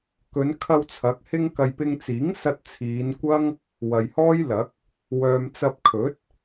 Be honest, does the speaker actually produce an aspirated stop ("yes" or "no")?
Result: yes